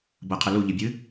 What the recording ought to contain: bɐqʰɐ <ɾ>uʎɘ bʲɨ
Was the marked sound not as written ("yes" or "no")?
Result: yes